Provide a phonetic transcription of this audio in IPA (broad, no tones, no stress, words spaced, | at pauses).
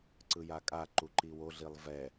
ǀɯjakʼa ǃuǃiwo ɮilˠvɛ